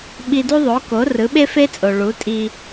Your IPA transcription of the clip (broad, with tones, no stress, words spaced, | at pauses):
ɓi˧du˥ðˤo˩˥ko˩˥ rɯ˩˥ɓe˥fe˥t͡sʼo˩ ɭu˩˥tʼi˧